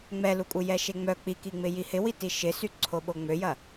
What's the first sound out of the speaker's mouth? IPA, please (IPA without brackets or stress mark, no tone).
ŋ͡m